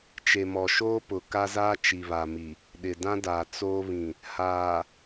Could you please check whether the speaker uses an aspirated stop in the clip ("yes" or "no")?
no